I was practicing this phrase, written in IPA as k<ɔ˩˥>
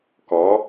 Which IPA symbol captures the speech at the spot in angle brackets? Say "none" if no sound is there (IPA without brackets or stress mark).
ɔ˩˥